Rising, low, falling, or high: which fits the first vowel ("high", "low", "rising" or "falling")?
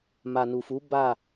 low